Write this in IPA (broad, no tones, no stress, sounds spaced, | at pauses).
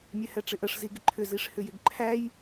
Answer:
mʲ ɛ h ɛ ʈ͡ʂ ɪ ʔ ə ʂ z i ɡ ɪ ǃʰ ʏ z i ʂ h ʏ j ɪ ɡ ǃʰ æ j